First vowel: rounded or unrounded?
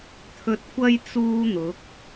rounded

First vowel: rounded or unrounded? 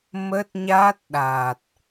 unrounded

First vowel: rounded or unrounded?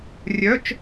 rounded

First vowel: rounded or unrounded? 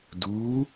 rounded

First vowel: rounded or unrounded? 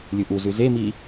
rounded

